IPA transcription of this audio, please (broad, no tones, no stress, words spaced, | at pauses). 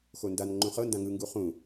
xondan ŋ͡ǃũχɤ ndãŋɯ ŋɡuχũ